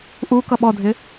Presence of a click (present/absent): absent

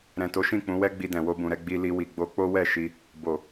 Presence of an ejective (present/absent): absent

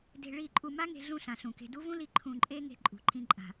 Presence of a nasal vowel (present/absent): present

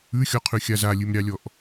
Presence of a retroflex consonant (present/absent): absent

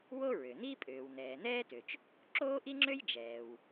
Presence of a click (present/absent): present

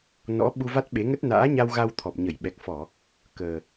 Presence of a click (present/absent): absent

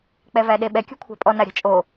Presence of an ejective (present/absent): present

